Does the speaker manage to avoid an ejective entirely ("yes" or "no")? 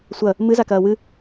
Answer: yes